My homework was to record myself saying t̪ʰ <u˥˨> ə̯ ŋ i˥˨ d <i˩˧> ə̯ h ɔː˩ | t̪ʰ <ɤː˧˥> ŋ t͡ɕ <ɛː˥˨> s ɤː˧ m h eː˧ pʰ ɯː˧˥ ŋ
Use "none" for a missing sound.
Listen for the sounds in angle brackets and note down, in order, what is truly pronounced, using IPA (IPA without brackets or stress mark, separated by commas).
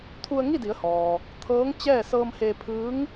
u˧, i˩˧, ɤː˧˥, ɛː˥˨